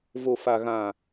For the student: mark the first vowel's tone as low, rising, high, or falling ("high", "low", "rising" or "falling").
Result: low